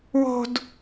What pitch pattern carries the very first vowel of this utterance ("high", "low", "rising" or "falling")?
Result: high